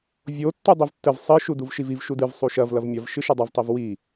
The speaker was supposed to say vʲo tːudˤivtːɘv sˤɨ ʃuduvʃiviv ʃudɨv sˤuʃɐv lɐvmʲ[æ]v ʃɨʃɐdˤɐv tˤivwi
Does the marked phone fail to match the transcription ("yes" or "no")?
yes